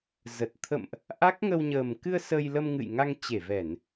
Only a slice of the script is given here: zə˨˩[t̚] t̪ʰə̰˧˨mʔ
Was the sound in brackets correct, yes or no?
yes